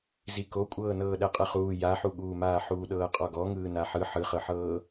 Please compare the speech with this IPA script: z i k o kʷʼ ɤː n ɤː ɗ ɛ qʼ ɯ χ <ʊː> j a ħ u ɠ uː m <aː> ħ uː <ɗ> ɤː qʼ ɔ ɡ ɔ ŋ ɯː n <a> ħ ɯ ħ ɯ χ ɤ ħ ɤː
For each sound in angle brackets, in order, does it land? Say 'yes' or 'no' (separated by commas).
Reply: no, yes, yes, yes